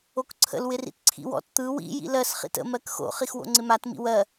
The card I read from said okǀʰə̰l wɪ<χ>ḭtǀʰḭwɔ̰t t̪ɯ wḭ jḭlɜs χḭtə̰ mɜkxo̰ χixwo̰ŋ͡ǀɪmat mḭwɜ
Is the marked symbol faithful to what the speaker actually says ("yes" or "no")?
no